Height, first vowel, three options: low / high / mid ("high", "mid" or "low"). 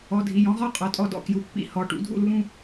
mid